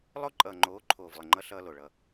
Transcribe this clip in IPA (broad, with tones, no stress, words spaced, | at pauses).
lˠo˦ǃʼʌː˨ŋ͡ǃoː˨˦ ǃʰoː˨vlˠə˨ŋ͡ǃʌ˦ ɬʌː˦ lo˨ ɭʌ˦˨